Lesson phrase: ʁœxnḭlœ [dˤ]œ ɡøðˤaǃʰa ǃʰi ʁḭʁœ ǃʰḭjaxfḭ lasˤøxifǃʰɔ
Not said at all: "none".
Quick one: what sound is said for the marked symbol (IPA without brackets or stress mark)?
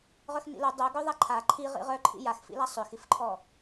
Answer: dˤ